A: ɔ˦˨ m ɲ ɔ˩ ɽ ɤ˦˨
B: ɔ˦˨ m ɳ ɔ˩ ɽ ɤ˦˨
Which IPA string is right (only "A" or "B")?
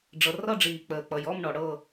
B